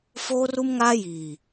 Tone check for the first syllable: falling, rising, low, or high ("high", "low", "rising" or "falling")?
high